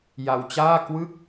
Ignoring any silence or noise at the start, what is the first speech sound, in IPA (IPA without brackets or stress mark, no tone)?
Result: j